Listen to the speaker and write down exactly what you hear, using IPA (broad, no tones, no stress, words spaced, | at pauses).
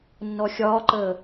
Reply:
nːɔxʲɒːǃəː